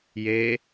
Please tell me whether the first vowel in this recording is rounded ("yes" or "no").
no